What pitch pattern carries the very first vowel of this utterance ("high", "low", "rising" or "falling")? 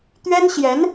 high